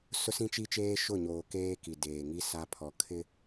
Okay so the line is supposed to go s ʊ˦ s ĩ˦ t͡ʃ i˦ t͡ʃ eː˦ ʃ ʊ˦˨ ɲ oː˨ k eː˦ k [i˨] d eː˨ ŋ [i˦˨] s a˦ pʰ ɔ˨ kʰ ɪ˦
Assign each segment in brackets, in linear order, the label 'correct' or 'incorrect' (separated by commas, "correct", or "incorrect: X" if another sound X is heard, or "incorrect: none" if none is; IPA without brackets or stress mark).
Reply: correct, incorrect: i˦